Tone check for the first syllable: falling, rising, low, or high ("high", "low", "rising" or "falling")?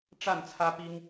falling